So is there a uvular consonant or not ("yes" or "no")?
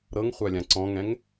yes